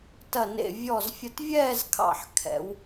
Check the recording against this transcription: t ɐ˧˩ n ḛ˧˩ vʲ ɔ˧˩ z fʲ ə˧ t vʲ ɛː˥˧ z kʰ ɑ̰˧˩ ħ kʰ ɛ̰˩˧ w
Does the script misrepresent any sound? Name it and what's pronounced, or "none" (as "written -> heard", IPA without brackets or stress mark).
none